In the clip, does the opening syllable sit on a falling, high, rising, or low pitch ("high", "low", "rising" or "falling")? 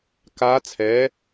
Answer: rising